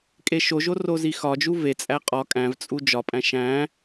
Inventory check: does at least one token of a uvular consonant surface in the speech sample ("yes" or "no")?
yes